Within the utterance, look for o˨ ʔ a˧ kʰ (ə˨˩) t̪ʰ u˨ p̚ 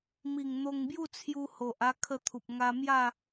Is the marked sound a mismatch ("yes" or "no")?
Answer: yes